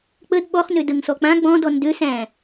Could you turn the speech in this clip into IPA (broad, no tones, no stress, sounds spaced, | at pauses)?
k͡p ə d ɓ ɔ χ n ø d ə ŋ s ɔ k͡p ã ɡ͡b ɔ̃ d ɔ n d ø s æ̃